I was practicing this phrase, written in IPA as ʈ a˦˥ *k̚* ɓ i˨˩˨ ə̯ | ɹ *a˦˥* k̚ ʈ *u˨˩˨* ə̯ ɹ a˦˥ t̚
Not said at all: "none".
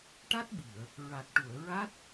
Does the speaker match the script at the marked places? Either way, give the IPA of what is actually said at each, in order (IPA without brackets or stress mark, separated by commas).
t̚, a˨˩, u˨˩˨